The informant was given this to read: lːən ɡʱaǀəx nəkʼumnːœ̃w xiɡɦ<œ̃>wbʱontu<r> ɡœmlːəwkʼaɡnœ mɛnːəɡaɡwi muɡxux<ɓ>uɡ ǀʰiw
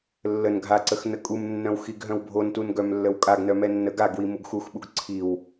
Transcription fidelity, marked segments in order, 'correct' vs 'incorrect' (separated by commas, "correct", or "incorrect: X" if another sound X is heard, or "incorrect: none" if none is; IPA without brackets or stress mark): correct, incorrect: n, correct